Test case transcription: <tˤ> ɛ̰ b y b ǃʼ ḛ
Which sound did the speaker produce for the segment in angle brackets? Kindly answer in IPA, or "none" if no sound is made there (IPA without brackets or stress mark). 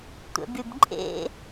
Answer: tʷ